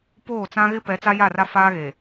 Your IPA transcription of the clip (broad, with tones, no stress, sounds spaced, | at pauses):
p oː˦˨ t͡s ã˦ ɣ ɪ˦ p ɛ˨˦ t͡s a˦ j a˦˨ r a˦ f aː˦ ɣ e˨